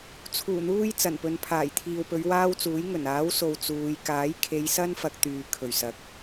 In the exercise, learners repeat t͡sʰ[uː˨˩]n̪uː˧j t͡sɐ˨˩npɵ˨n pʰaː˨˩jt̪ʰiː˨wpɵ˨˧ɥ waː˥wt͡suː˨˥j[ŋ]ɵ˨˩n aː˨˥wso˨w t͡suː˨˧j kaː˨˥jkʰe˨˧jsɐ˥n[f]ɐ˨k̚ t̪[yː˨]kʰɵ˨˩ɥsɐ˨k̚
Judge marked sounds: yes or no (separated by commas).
yes, yes, yes, yes